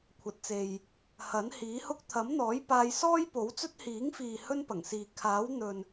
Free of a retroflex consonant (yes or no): yes